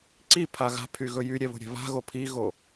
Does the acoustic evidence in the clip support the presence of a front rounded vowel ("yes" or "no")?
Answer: yes